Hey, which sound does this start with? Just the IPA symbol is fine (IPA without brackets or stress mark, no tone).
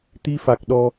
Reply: t̪